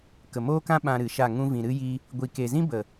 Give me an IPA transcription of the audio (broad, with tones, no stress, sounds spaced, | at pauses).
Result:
k ə˨ m oː˦ k ã˦ ɓ ã˧ ɾ ɨ˨ ʃ a˦˨ ŋ ũ˧ v ĩ˨ ɾ ɨ˦ j i˦ | ɡʷ i˨ k e˨ z ĩ˦ b ə˨